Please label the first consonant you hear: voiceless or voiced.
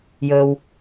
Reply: voiced